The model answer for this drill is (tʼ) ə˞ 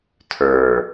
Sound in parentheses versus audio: incorrect: tʰ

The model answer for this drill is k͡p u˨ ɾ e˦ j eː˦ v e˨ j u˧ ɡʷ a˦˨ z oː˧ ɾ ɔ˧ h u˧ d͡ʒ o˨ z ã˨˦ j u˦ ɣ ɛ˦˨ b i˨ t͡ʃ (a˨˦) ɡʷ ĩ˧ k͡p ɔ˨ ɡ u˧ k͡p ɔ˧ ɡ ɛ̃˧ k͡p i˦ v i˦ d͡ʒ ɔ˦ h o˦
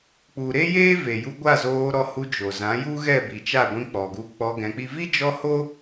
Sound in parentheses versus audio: incorrect: a˦˨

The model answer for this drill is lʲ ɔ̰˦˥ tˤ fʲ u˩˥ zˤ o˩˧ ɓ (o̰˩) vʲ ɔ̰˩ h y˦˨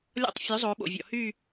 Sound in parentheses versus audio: correct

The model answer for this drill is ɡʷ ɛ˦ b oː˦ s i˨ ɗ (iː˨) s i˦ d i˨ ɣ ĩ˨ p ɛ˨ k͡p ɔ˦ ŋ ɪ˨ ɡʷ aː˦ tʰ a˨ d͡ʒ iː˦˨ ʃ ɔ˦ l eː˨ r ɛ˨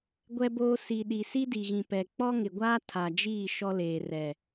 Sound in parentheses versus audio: incorrect: i˨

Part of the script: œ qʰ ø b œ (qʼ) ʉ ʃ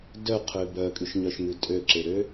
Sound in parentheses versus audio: incorrect: kʼ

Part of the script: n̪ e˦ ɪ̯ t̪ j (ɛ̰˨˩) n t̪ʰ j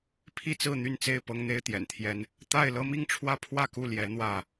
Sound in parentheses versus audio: correct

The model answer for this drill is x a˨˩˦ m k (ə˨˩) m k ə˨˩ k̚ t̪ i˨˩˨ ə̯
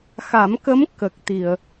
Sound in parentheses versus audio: incorrect: ə˧˥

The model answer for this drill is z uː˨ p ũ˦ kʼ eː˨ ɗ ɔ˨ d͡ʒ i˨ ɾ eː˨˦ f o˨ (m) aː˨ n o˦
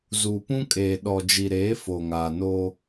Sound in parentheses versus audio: incorrect: ŋ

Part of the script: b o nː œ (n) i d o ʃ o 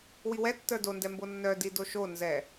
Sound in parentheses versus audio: incorrect: d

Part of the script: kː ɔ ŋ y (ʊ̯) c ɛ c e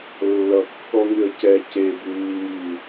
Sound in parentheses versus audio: incorrect: ə̯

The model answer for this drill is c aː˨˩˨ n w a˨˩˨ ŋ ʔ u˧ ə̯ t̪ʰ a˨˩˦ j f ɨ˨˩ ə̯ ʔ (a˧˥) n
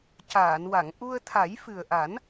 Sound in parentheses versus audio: incorrect: a˨˩˦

